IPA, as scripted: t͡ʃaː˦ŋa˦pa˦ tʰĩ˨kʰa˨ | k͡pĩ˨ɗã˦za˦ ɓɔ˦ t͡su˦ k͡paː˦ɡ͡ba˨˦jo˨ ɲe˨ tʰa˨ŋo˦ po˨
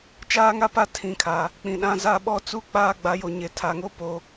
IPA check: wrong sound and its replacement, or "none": none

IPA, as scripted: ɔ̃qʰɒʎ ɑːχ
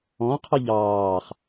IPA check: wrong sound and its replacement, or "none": ɒ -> ɑ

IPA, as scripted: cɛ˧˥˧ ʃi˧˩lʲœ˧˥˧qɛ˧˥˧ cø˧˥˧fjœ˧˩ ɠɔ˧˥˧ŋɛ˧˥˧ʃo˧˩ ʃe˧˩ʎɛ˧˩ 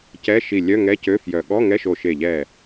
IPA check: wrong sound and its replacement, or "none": q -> ŋ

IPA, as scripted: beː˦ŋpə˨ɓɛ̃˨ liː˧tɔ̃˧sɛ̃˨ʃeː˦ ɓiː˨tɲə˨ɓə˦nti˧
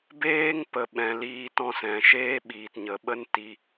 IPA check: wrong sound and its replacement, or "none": none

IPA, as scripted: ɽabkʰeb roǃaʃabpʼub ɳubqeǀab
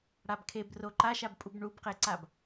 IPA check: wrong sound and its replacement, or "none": none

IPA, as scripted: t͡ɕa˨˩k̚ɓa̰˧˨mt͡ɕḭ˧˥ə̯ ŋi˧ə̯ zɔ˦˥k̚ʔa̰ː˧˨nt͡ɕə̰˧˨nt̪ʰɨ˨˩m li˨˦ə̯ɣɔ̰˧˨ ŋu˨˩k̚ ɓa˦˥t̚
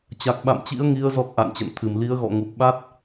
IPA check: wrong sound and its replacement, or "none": none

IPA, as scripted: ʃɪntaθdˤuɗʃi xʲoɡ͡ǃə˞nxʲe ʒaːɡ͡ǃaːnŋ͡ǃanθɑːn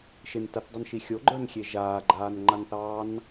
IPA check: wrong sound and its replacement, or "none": ɗ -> n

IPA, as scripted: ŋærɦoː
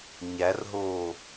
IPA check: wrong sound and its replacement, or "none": ŋ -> ɲ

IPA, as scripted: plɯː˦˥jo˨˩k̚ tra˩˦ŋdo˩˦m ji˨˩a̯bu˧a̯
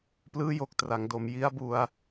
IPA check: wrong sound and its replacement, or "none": i˨˩ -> i˦˥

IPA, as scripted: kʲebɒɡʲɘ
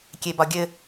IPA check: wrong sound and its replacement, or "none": none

